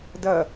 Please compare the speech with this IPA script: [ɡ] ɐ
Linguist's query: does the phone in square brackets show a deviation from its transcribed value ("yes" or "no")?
yes